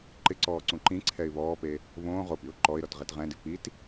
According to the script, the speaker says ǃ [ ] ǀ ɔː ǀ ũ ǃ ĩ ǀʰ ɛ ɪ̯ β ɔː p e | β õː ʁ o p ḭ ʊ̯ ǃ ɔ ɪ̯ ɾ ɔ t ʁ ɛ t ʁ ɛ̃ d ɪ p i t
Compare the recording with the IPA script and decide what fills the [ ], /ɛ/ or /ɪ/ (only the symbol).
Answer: ɪ